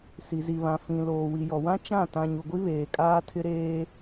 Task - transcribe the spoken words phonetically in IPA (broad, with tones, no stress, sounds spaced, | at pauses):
s i˨ z i˨ β ã˨ f ĩ˨ l oː˨ w i˨ j ɔ˨ w ã˦ t͡ʃ ã˦˨ t ã˨ ɲ u˨ ɡʷ i˦ β eː˨ kʼ aː˦ tʰ ɪ˦ ɾ eː˦